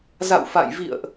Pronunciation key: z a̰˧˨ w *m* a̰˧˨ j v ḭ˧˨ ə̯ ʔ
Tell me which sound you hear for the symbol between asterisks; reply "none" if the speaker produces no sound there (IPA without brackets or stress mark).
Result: f